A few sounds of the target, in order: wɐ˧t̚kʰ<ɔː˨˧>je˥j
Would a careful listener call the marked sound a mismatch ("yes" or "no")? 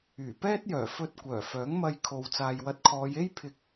no